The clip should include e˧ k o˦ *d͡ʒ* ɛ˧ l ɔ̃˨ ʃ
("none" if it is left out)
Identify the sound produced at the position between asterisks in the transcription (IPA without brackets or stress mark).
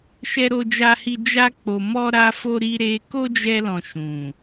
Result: d͡ʒ